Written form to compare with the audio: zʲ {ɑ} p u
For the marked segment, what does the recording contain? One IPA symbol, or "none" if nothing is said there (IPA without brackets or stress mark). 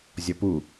ɔ